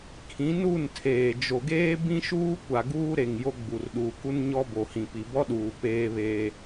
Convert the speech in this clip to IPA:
kʰĩ˨˦nu˦˨ntʰeː˨ d͡ʒo˨ɡeː˦ bĩ˦ʃuː˦kʷa˨ ɡuː˦ɾe˨ŋ jo˦ɡ͡bu˨r ɗuː˨ku˦n ɲɔ˦bo˨ hĩ˨pi˨bɔ˦ɗuː˨ peː˦βeː˦

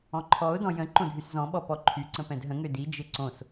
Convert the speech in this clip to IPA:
ɔ̃ǃʰɔʊ̯dɔ̃ jə̃ ǃõdʱyszɔ̃ɓɔ pɔǃʰyǀə̃ pɛ̃dɦə̃ŋø did͡ʒɪ ǀõs

